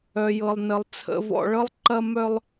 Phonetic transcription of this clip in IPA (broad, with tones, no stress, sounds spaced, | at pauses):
œ˨ j ɤ˨ lˠ n ə˨ lˠ t͡sʰ ə̰˨ v ɔ̰˨ ɭ ɤ˦ lˠ ǃ ɐ˦ m œ˦ lˠ